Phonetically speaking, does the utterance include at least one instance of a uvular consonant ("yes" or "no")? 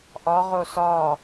yes